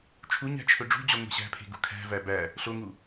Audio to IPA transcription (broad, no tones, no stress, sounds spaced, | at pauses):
t͡ʃʰ u ɲ æ̤ t͡ʃʰ ɵ ɖ͡ʐ ṳ d͡ʑ ɔ ŋʷ e̤ ɕ æ̤ pʰ e̤ ɡ ṳ kʰ æ̤ v æ b æ | ɬ o ŋ u